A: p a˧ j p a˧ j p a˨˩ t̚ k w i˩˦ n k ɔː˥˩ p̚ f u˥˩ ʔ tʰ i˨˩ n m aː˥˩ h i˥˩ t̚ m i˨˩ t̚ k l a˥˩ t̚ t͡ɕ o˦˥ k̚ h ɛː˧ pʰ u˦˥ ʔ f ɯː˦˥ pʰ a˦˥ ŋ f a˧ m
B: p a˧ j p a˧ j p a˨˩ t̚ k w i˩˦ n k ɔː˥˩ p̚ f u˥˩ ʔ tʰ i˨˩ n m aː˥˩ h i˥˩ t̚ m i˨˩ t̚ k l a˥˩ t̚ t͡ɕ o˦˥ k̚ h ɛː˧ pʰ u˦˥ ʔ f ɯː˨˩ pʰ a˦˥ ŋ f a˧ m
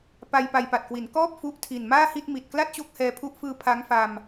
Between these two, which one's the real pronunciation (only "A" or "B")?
A